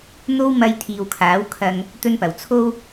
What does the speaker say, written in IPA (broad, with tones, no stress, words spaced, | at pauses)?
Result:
n̪o˥wmɐ˧j t̪ʰiː˨wkʰaː˨˥wkʰɐ˧ŋ | t̪ɵ˥npɐ˨˩w t͡sʰo˥w